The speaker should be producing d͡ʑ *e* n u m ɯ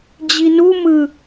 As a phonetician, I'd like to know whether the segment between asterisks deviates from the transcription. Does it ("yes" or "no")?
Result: yes